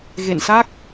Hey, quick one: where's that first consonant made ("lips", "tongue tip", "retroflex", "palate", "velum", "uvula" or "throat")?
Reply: velum